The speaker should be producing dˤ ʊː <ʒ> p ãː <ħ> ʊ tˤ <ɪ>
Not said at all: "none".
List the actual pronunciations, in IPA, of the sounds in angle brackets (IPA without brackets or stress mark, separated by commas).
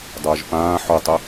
ʒ, ħ, ɪ